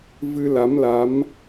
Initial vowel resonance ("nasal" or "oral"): oral